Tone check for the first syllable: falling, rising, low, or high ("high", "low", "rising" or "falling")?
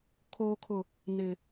low